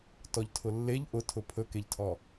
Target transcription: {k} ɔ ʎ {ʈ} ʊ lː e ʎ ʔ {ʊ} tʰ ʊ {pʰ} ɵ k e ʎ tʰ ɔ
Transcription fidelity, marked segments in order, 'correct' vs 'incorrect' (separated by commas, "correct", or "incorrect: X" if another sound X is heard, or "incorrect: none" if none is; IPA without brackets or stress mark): incorrect: t, incorrect: tʰ, correct, correct